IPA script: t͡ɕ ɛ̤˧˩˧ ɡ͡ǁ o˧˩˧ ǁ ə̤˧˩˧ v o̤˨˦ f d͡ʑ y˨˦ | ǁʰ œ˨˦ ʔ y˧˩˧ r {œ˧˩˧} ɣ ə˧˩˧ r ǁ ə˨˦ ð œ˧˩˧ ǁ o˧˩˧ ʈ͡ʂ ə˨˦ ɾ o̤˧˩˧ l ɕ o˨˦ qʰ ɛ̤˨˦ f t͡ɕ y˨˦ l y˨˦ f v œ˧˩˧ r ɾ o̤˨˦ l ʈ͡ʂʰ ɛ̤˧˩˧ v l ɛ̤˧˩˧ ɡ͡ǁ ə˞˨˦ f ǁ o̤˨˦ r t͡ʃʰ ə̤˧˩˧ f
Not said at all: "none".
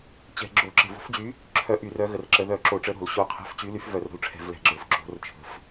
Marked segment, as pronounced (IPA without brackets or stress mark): œ˨˦